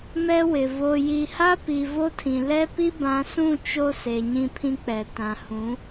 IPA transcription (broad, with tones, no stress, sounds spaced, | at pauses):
m ɛ˦ w ɪ˨ v o˨ j i˨ h a˦ p i˨ v o˦ tʰ ĩ˨ l ɛ˦ p i˦ b ã˨˦ s ũ˦˨ t͡ʃ o˦ s e˨ ɲ ĩ˦ pʰ ĩ˦ k͡p ɛ˨ t ã˨ h ũ˨˦